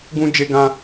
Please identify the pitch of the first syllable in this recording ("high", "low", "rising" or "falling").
high